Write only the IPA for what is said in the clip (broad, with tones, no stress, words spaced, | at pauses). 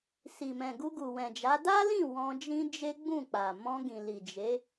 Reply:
si˨mɛ̃˨ ɡu˧ɡu˨wɛ̃˨d͡ʒa˨˦ da˦lĩ˦˨ wɔ̃˧d͡ʒĩ˦ d͡ʒe˦ɡ͡bũ˦˨k͡pa˨ mɔ̃˧ɡĩ˨li˨ d͡ʒe˨˦